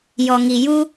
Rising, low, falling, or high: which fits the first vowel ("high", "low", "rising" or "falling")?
low